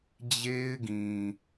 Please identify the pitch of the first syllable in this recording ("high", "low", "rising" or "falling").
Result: high